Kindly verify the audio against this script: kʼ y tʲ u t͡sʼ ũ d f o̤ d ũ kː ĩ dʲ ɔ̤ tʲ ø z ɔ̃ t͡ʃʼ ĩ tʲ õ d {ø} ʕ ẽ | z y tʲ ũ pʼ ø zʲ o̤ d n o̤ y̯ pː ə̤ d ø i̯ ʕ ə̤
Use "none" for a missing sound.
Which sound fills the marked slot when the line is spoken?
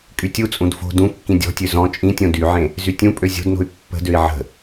y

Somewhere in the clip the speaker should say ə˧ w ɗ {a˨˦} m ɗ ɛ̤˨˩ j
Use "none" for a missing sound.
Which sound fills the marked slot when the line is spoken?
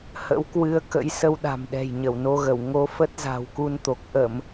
a̤˨˩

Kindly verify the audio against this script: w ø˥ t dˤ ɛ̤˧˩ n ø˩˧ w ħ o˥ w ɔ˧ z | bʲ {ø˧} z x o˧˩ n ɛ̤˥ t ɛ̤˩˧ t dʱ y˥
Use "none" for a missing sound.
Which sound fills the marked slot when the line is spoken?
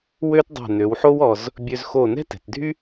ø˧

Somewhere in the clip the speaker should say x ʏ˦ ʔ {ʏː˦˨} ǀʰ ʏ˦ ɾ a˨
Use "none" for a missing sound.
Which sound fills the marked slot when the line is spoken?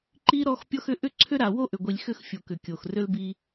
ʏ˦˨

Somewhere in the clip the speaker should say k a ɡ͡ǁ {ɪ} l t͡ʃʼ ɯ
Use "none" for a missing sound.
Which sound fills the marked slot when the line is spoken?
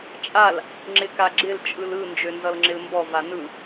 ɪ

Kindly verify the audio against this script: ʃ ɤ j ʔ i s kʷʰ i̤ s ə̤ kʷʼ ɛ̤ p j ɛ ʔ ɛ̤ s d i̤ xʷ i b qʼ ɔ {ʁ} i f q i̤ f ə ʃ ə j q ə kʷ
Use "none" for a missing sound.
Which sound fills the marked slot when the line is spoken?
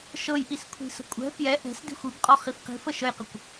χ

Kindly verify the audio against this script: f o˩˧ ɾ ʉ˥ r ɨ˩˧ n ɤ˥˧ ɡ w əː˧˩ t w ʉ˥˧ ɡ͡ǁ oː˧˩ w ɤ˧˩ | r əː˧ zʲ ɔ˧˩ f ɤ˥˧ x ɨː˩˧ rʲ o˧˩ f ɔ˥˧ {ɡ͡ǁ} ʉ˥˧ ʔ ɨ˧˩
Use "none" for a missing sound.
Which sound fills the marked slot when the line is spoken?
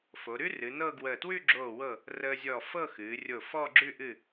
ɡ͡ǁ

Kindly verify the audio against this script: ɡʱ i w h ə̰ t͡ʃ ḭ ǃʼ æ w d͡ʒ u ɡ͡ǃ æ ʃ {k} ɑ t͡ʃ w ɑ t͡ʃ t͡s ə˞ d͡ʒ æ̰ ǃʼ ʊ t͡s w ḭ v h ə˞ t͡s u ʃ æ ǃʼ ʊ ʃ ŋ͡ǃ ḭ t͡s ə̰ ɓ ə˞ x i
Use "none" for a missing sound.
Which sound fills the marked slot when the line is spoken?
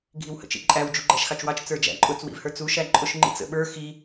x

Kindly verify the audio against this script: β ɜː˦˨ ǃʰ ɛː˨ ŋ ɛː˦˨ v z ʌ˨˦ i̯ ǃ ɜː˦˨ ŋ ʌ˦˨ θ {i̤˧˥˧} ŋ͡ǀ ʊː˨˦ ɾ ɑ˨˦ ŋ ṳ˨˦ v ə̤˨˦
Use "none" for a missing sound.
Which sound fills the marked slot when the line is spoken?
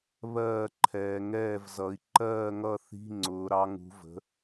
i̤˧˥˧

